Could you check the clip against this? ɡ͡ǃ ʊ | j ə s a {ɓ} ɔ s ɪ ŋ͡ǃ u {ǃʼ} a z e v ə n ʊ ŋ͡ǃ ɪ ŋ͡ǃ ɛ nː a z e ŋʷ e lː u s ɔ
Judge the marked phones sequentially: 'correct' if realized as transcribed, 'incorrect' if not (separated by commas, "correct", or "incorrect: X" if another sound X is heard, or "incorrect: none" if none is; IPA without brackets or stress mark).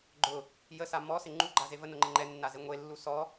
incorrect: m, incorrect: ɡ͡ǃ